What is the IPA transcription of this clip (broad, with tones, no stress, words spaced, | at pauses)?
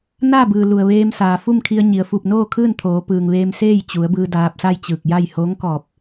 naː˥˨bɯː˩ lu˩ə̯ ʋeː˧msaː˩fu˥˨m kʰi˧ə̯ɲi˩ə̯fu˧˩p̚ noː˥˨kʰɯː˥˨nt̪ʰoː˩˧pɯː˩ŋ ʋeː˧mseː˥˨j t͡ɕu˩˧ə̯bɯː˧ daː˧p̚sa˥˨jt͡ɕɯː˧˩k̚ja˥˨j hoː˧˥ŋkɔː˧˩p̚